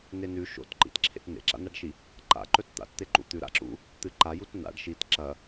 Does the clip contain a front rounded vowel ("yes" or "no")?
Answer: no